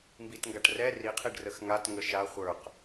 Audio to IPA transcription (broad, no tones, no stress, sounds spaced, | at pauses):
m b i t ŋ ɡ a ʈ r ɛ r i qʰ i ɖ r ə x ŋ a t ŋ ə ʃ a χʷ ə˞ q